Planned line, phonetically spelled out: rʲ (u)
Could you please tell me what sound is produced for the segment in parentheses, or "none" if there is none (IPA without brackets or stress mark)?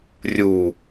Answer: u